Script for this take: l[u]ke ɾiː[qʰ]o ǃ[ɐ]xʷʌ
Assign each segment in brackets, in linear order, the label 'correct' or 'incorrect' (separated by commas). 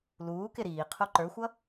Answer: incorrect, correct, incorrect